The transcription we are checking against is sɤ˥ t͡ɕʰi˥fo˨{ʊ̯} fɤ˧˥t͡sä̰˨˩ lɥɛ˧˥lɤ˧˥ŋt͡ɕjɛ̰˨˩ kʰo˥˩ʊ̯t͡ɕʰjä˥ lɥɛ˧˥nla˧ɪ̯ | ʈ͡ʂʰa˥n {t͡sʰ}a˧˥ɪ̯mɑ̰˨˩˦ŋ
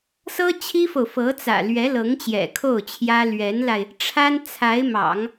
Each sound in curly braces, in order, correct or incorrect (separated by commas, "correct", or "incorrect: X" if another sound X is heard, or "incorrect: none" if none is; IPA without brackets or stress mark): correct, correct